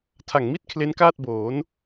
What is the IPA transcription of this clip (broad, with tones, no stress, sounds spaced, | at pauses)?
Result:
tʰ a˨˩ ŋ m i˦˥ t̚ kʰ l e˦˥ n k aː˥˩ t̚ b oː˩˦ n